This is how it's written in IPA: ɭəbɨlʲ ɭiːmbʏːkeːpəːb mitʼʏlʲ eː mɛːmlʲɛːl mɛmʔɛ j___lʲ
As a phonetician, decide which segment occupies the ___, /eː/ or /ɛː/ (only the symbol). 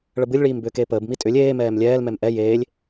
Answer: eː